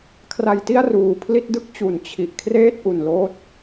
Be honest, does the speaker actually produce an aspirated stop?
yes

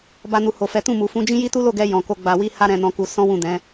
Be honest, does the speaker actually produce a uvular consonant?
no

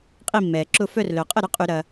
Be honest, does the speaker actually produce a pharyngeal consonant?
no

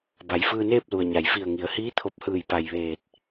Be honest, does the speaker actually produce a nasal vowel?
no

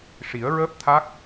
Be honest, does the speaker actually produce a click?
no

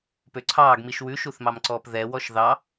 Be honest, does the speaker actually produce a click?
yes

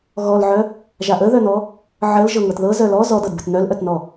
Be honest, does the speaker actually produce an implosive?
no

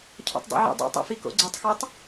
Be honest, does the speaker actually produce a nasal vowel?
no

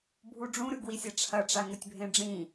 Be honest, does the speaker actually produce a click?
no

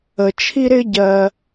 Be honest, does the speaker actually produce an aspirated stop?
yes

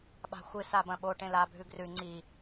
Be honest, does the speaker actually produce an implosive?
yes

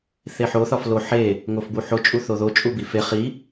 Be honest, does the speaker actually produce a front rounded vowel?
no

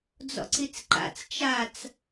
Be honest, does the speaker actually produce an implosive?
no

